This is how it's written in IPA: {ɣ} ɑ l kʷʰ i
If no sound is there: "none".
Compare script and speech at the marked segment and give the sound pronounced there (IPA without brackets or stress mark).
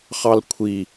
χ